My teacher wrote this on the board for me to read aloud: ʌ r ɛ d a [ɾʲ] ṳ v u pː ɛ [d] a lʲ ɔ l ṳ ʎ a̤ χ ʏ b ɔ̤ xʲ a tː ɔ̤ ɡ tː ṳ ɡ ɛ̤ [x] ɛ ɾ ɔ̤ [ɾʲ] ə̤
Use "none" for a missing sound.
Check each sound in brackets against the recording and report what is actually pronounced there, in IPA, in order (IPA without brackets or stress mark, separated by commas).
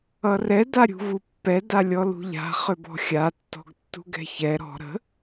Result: ɾʲ, d, ç, ɾ